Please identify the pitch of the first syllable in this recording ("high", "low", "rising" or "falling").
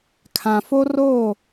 low